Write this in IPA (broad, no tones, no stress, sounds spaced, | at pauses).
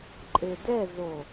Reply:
ǃʼ e d ɛ z o